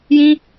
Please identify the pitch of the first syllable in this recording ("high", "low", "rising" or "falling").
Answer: high